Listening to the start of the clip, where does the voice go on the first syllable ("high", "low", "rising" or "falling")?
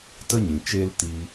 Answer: high